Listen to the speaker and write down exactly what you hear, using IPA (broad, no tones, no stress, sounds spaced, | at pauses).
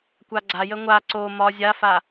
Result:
kʷ a ɡ͡ǀ a j ə ŋʷ a ǀ o m ɒ zʲ a f a